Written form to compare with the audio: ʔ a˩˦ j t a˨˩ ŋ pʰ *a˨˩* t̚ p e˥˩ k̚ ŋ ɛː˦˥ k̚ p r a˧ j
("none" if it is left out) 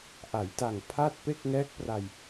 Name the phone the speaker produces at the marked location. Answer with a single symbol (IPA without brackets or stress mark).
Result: a˥˩